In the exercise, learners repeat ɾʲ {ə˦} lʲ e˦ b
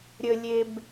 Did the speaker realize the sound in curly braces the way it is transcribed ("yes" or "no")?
yes